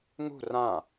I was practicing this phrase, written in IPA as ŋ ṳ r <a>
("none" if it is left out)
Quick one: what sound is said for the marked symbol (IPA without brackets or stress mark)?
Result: ã